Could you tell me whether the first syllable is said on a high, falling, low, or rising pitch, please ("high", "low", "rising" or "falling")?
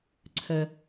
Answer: low